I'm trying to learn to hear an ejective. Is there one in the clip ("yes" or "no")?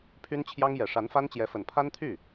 no